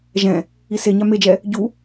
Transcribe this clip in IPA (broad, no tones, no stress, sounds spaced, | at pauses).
ʒ ɛ̃ | i s e ɲ a m e d͡ʒ ɛ | ɟ u